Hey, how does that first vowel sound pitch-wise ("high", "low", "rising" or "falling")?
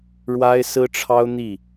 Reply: high